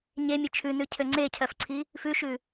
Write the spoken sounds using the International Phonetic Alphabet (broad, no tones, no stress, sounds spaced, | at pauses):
ɲ e mʲ e t͡ʃʰ ʉ n ʉ cʰ ø ŋ͡ǀ e cʰ ɜ f ǀʰ i | f ʉ ʃ ʉ